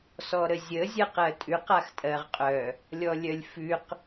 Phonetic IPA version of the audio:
s ɔ ɾ ə zʲ ə zʲ ɜ q ɜ tʼ ʉ q a x tʼ ɜ ʁ qʼ œ | lʲ ɔ lʲ œ lʲ f ʉ q

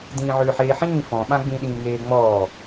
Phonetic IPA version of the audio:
d ĩː ʕ ʏː ħ eː ħ ĩː f ɔ̃ ɓ ã ɡ͡b ĩ ɗ ĩː ŋ eː ŋ͡m ɔː

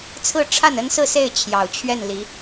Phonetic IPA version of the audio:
t͡sʰ ɹ̩˥˧ ʈ͡ʂʰ a˥˩ n ə˥ n s ɹ̩˥˧ s e˥˩ ɪ̯ t͡ɕʰ j ɑ˨˩ ʊ̯ t͡ɕʰ ɥ ɛ˥˩ n l i˧˥

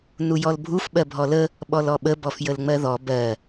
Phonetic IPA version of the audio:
n u j ɔ l bʱ u f ɓ ɜ bʱ ɔ l ə | ɓ ɔ l ɔ ɓ ə b ɔ f j ə l ŋ͡m ɜ ð ɔ b ɜ

